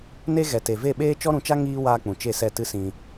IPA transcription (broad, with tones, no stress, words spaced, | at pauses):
ne˦ ɣɛ˨te˨ve˦˨ɓeː˦ t͡ʃɔ˦ɾũ˧t͡ʃa˦ ŋiː˦ waː˧k͡pũ˨ t͡ʃe˦˨sɛ˦˨ tɨ˦sĩ˧